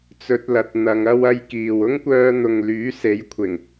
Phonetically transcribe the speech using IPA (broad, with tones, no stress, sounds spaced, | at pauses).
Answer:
t͡s ɵ˧ t̚ l ɐ˨ t̚ n̪ ɐ˨˧ ŋ ɐ˥ w ɐ˥ j k iː˨ w ʊ˥ ŋ kʷ œː˧ n̪ ʊ˨ ŋ l yː˨˥ s e˨˥ j kʷʰ ɪ˨˩ ŋ